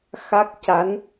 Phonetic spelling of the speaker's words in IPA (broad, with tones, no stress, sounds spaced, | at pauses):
x a˦˥ k̚ c a˧˥ n